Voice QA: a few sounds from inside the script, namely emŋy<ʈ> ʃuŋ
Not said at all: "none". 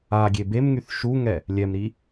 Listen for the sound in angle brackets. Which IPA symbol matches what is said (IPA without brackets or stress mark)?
θ